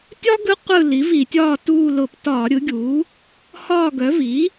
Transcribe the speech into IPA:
tʲ ɒ˥ ɡ ɯ˧˥ qʷ ɯ˦˨ l i˩˥ v i˧˩˧ tʲ ɒː˦˨ t uː˦˨ l ʊ˧˩˧ p t ɒː˧˩˧ ɾʲ ɯ˩˥ ɡʲ uː˩˥ | h ɒː˦˨ ɡ œ˩˥ v i˩˥

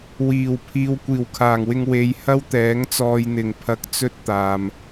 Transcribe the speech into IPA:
w iː˨˩ w pʰ iː˧ w kʷ iː˨˩ w kʰ aː˨˩ ŋ w ɪ˧ ŋ w e˨˧ j h ɐ˥ w t̪ ɛː˨˥ ŋ t͡s ɔː˧ j n̪ ɪ˨˩ ŋ pʰ ɐ˧ k̚ t͡s ɵ˥ t̚ t̪ aː˨ m

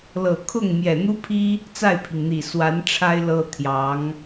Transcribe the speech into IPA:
l ɤ˨˩ kʰ ʊ˥˩ ŋ m j ɛ˨˩ n̪ u˥ pʰ i˥ | t͡s a˥˩ ɪ̯ pʰ i˩ ŋ n̪ i˨˩ s w a˧˥ n ʈ͡ʂʰ a˥ ɪ̯ l ɤ˥ t̪ʰ j ɑ˧˥ ŋ

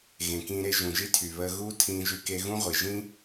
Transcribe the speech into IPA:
ɣ ẽ˩ k ĩː˧ ɾ e˧ ʒ ũ˩ ʒ i˥ tʰ y˩ β əː˧ ɣ uː˥ tʰ ĩː˧ ʒ y˧ k e˧ ɣ ũ˥ ʁʷ i˩ ʒ ĩ˥

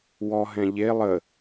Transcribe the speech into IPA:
w ɔ ɦ ɛ̃ ʎ e lˠ ə

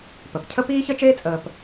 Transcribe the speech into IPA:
p ə˩ p cʰ ə˥ p iː˥ ç ə˥ t͡ʃ eː˥ t͡sʼ əː˨ p

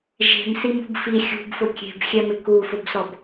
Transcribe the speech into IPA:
ʒ e̤ m s i m ṳ b f i xʲ ṳ b f ʊ kʲ e̤ b xʲ ɛ m ɪ k u f ʊ b s ɔ b

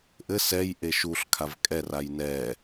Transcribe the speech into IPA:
ʔ ɘ s ɛ j ʔ e ʃ u ɬ kʰ a v kʼ ɛ r a j n ɛ

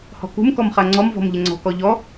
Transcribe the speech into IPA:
h ɔ̤ k ṳ m k ɔ m χ a ŋ͡ǀ ɔ m v ɔ̤ m ʎ ɪ ŋ͡ǀ ɔ̤ k ɔ ʎ ɔ

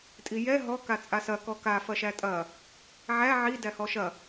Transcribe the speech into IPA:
tʼ i j ɛ ɦ ɔ k a t͡sʼ a s ɐ k ɔ k a f ɐ ʃ æ tʼ ɐ | ʕ æ ʕ i d æ h ɔ ʃ ɐ

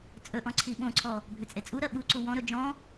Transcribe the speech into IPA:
t͡sʼ ɵ ʔ ɔ̃ ǀʰ i ɓ õ ǀʰ ɔ | bʱ ʏ t͡sʼ e t͡sʼ u ɾ ɜ ɓ u ǀ u w ɔ̃ ɾ ɵ d͡ʒ ɔ̃

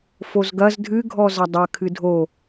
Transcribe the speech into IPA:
f o z ɡ ɐ z dʱ ɨ ɡʱ ɔ z ɐ dˤ ɐ kʰ ɨ dʱ o

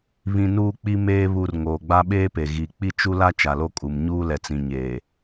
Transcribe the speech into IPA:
β ĩ˦ n uː˦ k͡p i˦ m eː˦ β u˦ r ŋ oː˨ ɡ͡b a˦ ɓ eː˦ p e˨ ɣ i˨ k͡p i˦ t͡ʃ u˦ l a˦ t͡ʃ a˨ l o˦ kʼ u˨ m ɲ uː˦ l ɛ˨ t͡s ĩ˨ ɲ eː˨

